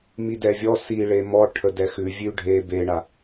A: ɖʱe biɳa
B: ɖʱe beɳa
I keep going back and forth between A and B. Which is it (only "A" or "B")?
B